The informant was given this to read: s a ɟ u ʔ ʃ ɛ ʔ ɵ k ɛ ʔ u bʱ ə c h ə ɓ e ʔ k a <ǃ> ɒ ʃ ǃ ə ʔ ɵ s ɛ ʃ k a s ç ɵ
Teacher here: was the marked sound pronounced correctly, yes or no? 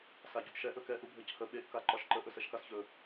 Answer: yes